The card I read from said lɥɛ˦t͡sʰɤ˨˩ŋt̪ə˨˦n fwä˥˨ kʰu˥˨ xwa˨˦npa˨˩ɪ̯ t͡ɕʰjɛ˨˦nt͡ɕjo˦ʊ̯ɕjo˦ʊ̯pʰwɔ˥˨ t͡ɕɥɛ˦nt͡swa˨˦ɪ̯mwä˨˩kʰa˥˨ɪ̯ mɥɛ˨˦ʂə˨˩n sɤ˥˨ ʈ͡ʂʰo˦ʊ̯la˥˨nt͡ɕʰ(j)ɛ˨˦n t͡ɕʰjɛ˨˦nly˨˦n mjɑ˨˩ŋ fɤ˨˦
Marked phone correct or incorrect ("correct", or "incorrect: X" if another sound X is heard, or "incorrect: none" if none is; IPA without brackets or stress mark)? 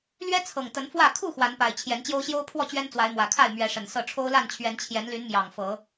incorrect: ɥ